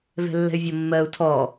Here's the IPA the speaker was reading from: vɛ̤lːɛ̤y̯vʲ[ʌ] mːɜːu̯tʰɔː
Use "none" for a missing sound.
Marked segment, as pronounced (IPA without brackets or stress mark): ʌ